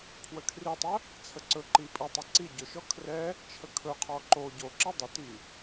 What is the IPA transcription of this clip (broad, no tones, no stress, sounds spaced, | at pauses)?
pʰ w ə kʰ r i tˤ ə | t͡sʰ ə ǀ ɵ ǃ i pʼ i tˤ o ǀ i ɟ ɵ ʃ ɔ kʰ r ɛ | t͡ʃʰ ə kʰ ɵ qʰ ɔ ǃ o ɟ o ǁ i dˤ ɵ t i